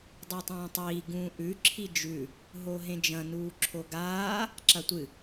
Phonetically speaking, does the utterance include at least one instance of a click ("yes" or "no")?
yes